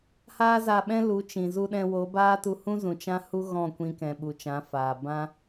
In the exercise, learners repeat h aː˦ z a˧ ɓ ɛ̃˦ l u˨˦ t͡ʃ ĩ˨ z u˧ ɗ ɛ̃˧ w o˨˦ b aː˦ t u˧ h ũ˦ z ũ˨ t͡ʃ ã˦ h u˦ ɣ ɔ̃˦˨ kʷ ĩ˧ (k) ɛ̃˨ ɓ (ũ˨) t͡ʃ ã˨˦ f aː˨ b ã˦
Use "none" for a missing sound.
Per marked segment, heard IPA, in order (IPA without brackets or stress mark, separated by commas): k, u˨